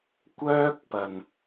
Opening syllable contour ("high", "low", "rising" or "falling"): high